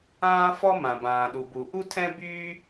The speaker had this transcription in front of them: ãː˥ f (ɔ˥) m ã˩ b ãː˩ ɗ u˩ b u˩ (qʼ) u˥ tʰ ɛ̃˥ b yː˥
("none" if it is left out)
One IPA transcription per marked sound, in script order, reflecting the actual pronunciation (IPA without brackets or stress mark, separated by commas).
ɔ˥, ʔ